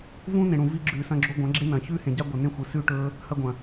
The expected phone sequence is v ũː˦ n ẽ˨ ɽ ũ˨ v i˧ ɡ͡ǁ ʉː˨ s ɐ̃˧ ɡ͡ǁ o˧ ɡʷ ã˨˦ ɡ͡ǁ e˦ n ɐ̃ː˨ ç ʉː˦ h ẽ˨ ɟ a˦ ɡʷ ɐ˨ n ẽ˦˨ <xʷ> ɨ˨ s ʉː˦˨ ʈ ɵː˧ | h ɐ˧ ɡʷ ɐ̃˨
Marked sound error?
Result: no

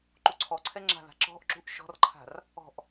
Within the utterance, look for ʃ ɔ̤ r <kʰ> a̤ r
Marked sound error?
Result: yes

